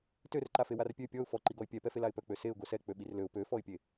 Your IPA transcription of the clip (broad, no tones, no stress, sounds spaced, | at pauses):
t ø r ǃ a f e w a r pʲ ø pʲ ɔ ʊ̯ f ɔ ǃ i ɡ ɔ ɪ̯ pʲ ɛ p ɛ f e l a ɪ̯ p œ k͡p ø s e ʊ̯ ɡ o s ɛ k͡p ø ɓ i r l ø ʊ̯ p ø f ɔ ɪ̯ pʲ e